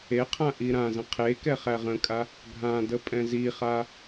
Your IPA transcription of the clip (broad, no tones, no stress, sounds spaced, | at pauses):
e qʰ ã ʔ i ɾ ã z ə̃ qʰ e k ɛ χ æ ʁ ə̃ kʼ a | ɡʱ ã d ə pʼ ɛ̃ z i χ a